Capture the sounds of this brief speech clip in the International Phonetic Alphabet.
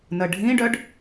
nəɖʱĩɖœɖ

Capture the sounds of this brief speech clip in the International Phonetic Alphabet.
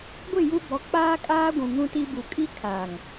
ɡʷɪ˦˨ ju˦bɔ˨˦k͡paː˦kʼaː˦ ɡʷũ˨ŋũ˦ti˦bu˨ kʼi˦kʰaː˨ŋ

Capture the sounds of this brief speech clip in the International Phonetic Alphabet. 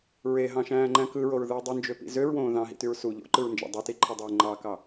ɹeɦɑ̃ʃæ̃ːŋ͡ǃæ̃ kɯɹoɹðɯː dˤund͡ʒøpḭ zøɹwõː ðɑ̃ɦḭtyɹ su ʎo̰ǃɯɹnd͡ʒɑ̰ dˤutiǃʰidˤøː ŋ͡ǃɑkɑ

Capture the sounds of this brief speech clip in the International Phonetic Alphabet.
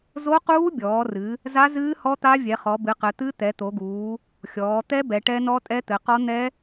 zo˦˥quː˦˥bʲɔː˩˧rɨ˩˧ | za˦˥zɨː˦˥ hɔ˦˥t̪a˦˥vʲɛ˩˧χɔ˩˧ bɨ˩˧qɘ˩˧ t̪ɨ˦˥ t̪ɛ˩˧t̪o˩˧ɡuː˩˧ | xʲɔː˩˧t̪ɛ˦˥ bɛ˩˧ʈɛ˦˥nɔ˦˥ tʼɛ˦˥t̪ɘ˩˧qɔ˦˥ n̪ɛ˦˥

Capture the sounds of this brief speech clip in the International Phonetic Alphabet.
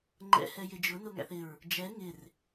ŋ͡ǃɛ̰ hɛjɪd͡ʒʊ nʊŋæ̰θɪɹ | d͡ʒɛ ŋɪr

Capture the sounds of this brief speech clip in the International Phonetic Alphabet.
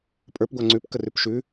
pʼə˞p ɡʷaŋ͡ǀʉp kərʉpʃʉ

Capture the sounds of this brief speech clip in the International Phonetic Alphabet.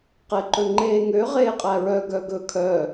qeǃɵŋ͡ǃeːŋø ʁeːqʼæɹœ ɡœɡɵ kʰœ

